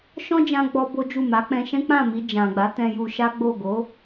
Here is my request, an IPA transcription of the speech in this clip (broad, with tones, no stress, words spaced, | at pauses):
ʃɔ̃˦d͡ʒã˧ ɡ͡bɔ˦bo˦ d͡ʒu˦˨ma˨˦k͡pɛ̃˦ ʃɛ̃˦k͡pã˦˨mi˧ d͡ʒã˨ɡ͡ba˨˦tɛ̃˧ ju˧ʃa˦ɡ͡bo˦˨ ɡo˨˦